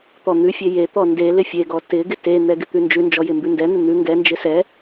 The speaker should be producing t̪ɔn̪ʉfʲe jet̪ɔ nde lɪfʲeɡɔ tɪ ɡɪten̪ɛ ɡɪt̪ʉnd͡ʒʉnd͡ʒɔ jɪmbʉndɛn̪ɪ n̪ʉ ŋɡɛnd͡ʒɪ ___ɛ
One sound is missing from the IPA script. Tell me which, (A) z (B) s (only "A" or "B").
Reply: B